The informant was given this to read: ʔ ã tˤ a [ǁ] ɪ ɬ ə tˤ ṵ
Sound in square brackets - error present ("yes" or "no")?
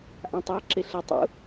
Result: no